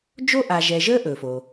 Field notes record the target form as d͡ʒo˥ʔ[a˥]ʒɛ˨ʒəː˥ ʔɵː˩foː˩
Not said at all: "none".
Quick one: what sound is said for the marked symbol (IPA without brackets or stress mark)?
a˨